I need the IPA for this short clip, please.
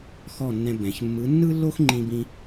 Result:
x ɔ˥˩ nː ɛ̃˧ b ɛ̃˩ ç mː ɯ˩˥ nː ɯ˥ lː o˥ x ŋ͡ǃ ĩ˧ b ĩ˧

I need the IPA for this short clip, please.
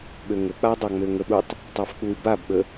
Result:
ɓ ø ŋ ə k͡p a dˤ ɑ ŋ͡m ø ŋ ə ɓ u tˤ | tˤ ɑ f k͡p u y̯ b a b ɓ ə

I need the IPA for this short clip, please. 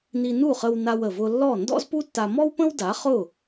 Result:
n i˧ n u˥˩ χ ə˧ w n a˧ w ə˩ v ʊ˧ lː ɔ˥˩ n d ɔ̰˥ z p u˥ tː a˧ m ɔ˥ w p ə̃˥ w d a˩˥ χ ʊ˥˩

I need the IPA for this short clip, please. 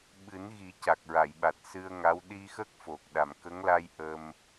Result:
ɓ ɨ˨˩˦ n ɣ i˨˩˦ c a˨˩ k̚ ɹ a˨˩˨ j ɓ a˨˩ t̚ s ɨ˧ ə̯ ŋ a˧˥ w ɗ i˧ x ə˦˥ k̚ f o˨˩ k̚ ɗ a˨˩ m k ə˧˥ ŋ l a˧ j ʔ ə˧ m

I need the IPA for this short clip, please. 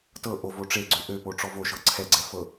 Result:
t ɤ ʔ o v o ʈ͡ʂ e ɡ͡ǀ ø ʔ ø p o ʈ͡ʂ ɔ v o ʃ ɤ ǀʰ ɛ ɡ͡ǀ ɛ f ɤ

